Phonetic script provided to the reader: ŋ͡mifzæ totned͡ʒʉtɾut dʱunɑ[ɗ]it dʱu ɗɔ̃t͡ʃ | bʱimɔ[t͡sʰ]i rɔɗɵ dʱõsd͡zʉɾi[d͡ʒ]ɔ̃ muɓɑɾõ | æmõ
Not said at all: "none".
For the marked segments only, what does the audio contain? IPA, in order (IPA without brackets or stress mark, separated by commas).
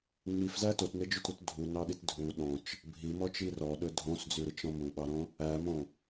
ɗ, t͡ʃ, t͡ʃ